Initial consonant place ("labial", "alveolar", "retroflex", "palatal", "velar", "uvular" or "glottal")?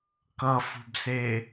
velar